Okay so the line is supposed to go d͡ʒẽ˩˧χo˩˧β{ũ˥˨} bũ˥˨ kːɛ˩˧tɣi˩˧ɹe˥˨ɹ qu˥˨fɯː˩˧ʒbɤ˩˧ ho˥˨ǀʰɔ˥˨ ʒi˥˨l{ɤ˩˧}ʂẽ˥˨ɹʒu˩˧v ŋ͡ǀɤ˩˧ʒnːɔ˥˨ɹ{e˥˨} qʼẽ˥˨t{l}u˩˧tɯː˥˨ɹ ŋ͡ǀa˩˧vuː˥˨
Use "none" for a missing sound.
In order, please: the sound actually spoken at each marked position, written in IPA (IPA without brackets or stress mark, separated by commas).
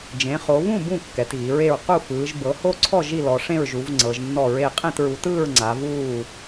ũ˥˨, ɔ˩˧, e˥˨, ɹ